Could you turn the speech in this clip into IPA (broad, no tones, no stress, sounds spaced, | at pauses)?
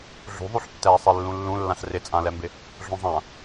ɮ ṳ ðˤ u ɬ tː ɛː sˤ e lː ũ lː ũ lː ã ɬ r ɪ t͡sʼ ã l ɛ m b ɪ | ɮ ũ zˤ ã